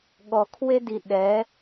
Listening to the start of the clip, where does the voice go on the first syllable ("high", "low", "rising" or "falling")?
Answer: low